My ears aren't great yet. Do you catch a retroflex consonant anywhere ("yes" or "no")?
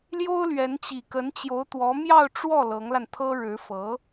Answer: yes